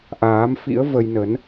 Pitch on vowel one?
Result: rising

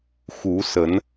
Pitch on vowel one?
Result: rising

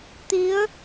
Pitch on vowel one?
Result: rising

